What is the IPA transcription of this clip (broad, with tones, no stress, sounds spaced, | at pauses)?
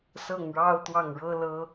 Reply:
s ɤ˥˩ ŋ ɻ ɑ˥ ʊ̯ t̪ w ɑ˥˩ ŋ ɻ ɤ˥ l ɤ˥